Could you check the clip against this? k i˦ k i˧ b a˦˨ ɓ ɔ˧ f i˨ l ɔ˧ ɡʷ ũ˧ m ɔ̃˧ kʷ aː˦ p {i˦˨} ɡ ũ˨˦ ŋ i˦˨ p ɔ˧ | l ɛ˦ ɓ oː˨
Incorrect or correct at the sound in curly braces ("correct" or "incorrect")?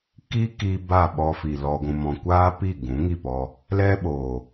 correct